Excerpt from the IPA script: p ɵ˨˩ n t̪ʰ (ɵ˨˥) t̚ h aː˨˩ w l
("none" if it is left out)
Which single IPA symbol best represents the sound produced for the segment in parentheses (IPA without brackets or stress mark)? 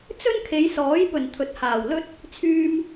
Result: ɵ˨˥